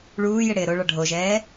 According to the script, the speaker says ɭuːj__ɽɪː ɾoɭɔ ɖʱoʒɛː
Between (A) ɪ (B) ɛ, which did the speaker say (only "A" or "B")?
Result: A